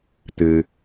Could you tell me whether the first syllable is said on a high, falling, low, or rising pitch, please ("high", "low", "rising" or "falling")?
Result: low